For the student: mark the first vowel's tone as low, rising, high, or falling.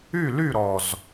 falling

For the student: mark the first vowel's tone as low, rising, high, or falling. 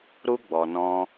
high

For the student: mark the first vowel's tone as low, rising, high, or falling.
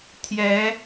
rising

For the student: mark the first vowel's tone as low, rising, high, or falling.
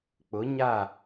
rising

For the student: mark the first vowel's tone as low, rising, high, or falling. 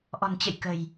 low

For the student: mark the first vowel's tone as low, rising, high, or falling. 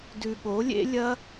low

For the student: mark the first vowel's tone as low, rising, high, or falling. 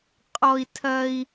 high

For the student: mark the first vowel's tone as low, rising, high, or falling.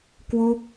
falling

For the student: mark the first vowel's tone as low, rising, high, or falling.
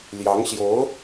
rising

